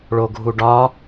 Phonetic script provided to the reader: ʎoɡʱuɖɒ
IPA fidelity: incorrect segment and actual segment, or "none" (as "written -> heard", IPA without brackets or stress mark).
ʎ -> ɭ